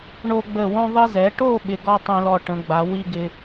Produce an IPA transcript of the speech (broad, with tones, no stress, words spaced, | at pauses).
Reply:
ɳo˧ɡ͡bə˧˩ wõ˧ðˤi˧zɛ˩˧ʈo˥˧ ɓɪ˧ɡɔ˥tˤĩ˧lɔ˧ ʈə̃˩˧ɡ͡ba˩˧ wi˥ ɡɪ˧